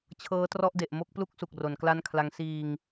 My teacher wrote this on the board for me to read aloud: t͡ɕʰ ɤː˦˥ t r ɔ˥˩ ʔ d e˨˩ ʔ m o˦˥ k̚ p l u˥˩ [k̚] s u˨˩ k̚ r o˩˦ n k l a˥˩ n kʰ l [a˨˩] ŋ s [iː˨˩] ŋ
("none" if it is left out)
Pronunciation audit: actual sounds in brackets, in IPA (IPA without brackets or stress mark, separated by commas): k̚, a˦˥, iː˧